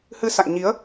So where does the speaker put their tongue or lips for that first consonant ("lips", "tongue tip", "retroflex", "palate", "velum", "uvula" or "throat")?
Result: throat